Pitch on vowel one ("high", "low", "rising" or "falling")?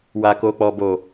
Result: low